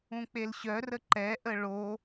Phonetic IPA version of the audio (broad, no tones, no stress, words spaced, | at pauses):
ũk͡pelɕœrə ǃɛʔə ɭo